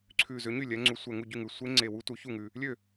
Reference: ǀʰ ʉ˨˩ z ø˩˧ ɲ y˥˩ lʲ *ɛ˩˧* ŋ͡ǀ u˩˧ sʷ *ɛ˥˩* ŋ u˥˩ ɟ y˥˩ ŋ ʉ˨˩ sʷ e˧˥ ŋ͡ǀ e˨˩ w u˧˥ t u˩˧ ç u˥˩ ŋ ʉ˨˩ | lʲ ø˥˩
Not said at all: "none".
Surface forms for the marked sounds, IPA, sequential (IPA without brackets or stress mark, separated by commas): ɛ˩˧, ɛ˨˩